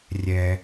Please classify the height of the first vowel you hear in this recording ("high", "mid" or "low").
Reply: mid